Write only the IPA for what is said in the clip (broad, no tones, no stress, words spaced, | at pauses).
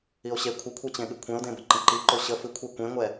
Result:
io̯ɕe kʷʰəkʷʰɛt͡ɕẽɠɨ kʷʰẽo̯dẽbə ǃə̃ǃiǃo ɕə fɨkʷʰɛ kʷẽŋʷɛ